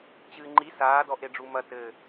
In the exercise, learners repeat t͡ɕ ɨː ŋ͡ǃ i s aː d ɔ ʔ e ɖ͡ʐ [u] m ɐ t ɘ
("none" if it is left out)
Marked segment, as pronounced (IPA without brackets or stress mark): u